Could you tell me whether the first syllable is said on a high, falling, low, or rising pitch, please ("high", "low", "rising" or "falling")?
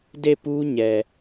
falling